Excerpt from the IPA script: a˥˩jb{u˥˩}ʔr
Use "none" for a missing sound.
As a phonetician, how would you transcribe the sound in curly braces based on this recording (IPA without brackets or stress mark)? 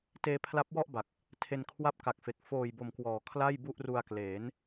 u˥˩